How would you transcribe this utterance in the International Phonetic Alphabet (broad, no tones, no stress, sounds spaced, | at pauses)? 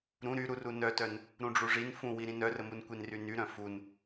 ɾ ũ ɾ y ɾ u r u n œ t œ n | ɾ ũ ɖ͡ʐ u ʐ i n f ũ w i ɾ ĩ n œ r ə m u n kʷ i n r y n y ɾ œ̃ f u n